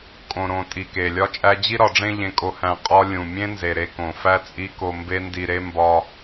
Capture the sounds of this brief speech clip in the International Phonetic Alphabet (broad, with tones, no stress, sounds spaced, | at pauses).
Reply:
kʼ õ˨ ɾ õ˨ tʼ i˨ k e˨ lʲ ɒ˦ t͡ʃʼ æ˦ d͡ʑ i˧ ɾ ɒ˨ ɖ͡ʐ ẽ˧ ʎ ẽ˧ kʼ o˧ h æ̃˧ qʼ ɒ˦ lʲ ũ˨ mʲ ẽ˦ n z e˨ ɾ e˧ k õ˨ f æ˦ t͡sʼ i˦ k o˧ m b e˦ n d i˧ ɾ e˦ m b ɒ˧